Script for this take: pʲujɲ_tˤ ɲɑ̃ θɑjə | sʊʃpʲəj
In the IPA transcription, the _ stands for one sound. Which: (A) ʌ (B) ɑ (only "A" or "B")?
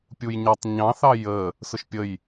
A